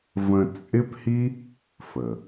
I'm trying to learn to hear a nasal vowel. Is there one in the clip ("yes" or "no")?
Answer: yes